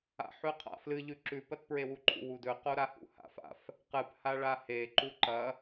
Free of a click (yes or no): no